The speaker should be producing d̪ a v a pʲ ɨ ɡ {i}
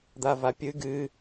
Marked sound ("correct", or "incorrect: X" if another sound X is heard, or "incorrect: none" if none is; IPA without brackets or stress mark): incorrect: ɨ